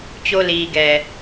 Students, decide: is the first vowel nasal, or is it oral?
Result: oral